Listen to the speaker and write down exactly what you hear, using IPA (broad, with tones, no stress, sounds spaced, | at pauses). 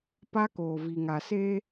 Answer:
p a˦ k oː˨ v i˨ ŋ a˨ s eː˦